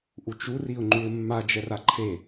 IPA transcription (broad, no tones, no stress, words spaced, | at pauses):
ʔut͡ʃu riʊ̯ŋ͡ǃuɪ̯mːa d͡ʒɛraǃʰe